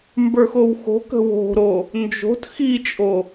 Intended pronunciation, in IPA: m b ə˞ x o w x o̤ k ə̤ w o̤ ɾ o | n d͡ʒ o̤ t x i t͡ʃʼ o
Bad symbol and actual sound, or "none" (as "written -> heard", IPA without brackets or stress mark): none